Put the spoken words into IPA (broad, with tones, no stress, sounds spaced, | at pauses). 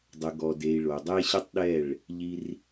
dˤ ə˨ ɡ ɔ˨ d e˨ i̯ ɭ o˨ dˤ e˦ ɕ ə˦ tˤ ɗ ɛ˦˨ ɭ | ʎ i˦ r